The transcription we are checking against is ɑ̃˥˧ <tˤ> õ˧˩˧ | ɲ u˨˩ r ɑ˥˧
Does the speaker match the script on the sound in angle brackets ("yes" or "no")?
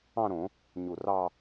no